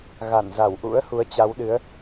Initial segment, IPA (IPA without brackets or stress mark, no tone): ɣ